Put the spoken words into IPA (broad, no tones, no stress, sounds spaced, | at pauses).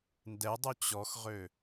n d ɛ dˤ u t͡ɕ ɔ x ʁ ø